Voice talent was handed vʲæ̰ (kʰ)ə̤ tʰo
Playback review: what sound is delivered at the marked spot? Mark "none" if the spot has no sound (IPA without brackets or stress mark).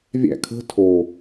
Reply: kʰ